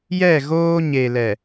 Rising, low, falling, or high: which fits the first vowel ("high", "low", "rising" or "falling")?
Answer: falling